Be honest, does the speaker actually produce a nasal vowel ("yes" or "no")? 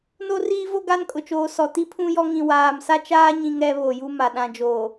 yes